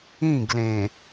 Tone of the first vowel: falling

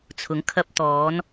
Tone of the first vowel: rising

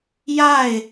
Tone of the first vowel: falling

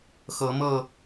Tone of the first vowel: rising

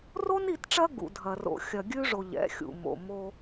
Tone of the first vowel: high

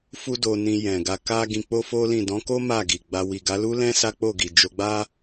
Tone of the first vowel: high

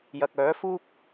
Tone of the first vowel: low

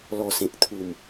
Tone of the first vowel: low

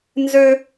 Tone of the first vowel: high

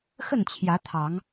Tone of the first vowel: falling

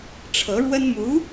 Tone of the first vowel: rising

